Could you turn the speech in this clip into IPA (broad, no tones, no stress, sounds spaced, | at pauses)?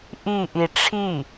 ʔ i ʔ i ʈ͡ʂʰ i